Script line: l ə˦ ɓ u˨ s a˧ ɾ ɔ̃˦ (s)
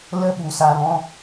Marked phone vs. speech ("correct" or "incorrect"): incorrect